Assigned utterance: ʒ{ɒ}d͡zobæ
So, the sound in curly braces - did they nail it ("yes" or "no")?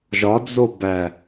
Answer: yes